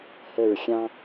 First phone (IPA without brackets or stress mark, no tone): h